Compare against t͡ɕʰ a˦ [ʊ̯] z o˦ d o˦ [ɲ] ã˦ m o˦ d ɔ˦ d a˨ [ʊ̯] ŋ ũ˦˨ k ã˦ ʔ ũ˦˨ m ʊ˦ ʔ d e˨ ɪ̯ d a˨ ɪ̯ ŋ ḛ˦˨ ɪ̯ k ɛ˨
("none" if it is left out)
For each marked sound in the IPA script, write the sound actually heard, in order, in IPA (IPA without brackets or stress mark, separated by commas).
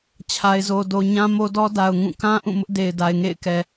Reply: ɪ̯, ɲ, ʊ̯